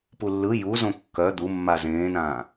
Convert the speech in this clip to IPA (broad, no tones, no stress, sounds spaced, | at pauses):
p u lː ɯ j u z õ kː œ d̪ u mː a z ẽː n ãː